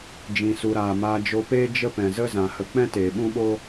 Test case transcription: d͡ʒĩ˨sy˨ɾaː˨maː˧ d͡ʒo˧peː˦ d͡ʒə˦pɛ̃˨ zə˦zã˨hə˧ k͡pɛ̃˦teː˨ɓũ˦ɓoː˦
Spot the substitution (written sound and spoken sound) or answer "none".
y˨ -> u˨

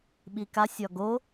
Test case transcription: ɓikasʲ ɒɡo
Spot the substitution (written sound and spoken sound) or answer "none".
none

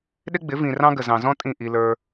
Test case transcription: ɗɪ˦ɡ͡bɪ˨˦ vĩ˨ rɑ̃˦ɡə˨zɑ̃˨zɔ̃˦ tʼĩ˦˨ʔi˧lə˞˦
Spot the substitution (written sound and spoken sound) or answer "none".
none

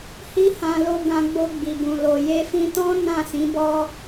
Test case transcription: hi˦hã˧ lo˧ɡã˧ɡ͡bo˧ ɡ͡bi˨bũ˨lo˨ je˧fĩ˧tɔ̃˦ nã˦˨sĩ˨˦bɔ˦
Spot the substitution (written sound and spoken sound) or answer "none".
none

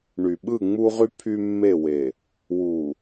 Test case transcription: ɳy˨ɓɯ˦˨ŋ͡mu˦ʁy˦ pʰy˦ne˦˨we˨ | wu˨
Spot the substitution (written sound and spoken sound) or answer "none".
n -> mː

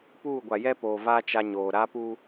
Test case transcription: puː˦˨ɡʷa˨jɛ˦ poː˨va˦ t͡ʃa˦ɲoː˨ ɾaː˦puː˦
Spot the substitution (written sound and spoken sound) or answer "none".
none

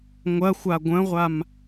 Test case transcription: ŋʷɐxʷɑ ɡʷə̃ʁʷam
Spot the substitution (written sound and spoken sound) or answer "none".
ɑ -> a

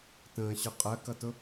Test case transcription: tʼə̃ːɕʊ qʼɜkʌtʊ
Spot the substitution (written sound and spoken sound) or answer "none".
tʼ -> t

